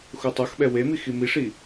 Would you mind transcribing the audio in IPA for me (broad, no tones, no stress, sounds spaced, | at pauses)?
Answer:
x u tˤ u x ɓ ɛ w e m i x i m i ʂ i